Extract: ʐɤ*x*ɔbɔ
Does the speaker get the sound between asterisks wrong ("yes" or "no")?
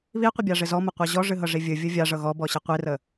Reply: yes